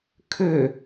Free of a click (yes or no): yes